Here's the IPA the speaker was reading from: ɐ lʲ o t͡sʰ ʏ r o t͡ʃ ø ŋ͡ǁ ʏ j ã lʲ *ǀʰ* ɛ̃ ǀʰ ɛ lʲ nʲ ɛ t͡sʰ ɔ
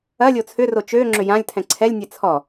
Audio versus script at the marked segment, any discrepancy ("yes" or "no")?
yes